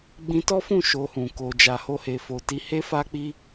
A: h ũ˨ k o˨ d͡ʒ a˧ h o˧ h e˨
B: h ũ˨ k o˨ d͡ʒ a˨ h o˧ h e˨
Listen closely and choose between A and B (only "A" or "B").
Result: B